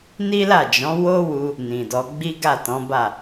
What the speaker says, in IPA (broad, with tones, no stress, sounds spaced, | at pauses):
n i˦ l a˦˨ d͡ʒ ɔ̃˨˦ w o˦ w u˧ | n ĩ˨ d ɔ˨˦ ɡ͡b i˦ ɡ a˦˨ t ɔ̃˨˦ b a˦˨